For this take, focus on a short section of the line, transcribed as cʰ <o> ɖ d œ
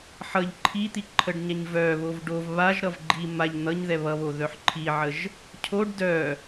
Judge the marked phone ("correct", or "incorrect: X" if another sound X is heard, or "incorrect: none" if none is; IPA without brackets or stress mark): correct